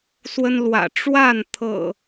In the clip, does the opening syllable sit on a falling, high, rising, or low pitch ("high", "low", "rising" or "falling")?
high